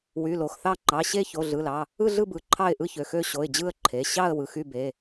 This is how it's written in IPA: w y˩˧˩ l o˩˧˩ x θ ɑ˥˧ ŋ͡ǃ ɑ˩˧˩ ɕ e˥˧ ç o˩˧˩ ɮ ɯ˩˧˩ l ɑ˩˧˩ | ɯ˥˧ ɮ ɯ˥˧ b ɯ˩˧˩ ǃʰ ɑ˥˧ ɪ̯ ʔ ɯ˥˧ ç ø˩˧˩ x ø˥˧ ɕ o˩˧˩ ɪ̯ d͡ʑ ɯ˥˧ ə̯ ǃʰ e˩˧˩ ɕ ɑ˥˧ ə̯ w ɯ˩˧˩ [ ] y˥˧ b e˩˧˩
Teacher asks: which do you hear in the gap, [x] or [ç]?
x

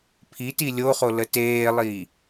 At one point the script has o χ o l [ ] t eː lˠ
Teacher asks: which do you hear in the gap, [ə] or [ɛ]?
ə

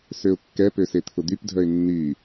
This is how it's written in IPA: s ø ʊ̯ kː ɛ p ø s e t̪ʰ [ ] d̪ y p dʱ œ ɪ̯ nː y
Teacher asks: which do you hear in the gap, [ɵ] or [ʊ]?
ʊ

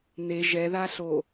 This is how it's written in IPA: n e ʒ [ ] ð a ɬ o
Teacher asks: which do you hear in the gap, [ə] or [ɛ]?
ɛ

